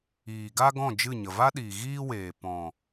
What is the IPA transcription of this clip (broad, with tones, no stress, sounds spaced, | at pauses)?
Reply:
iː˨ ɡ a˦ ɡ ɔ̃˦˨ d͡ʒ ɨ˦˨ ɲ ə˨ v a˦ ɗ iː˨ ɣ iː˦ w eː˨ p ɔ̃˨